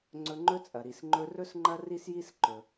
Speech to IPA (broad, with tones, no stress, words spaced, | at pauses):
ŋ͡ǀɵ˧ŋ͡ǃɵ˥t͡sʼɐ˩ɾi˩s ŋ͡ǃɵ˧rɵ˥s ŋ͡ǃɐ˥ri˥sji˥s ǃɵ˩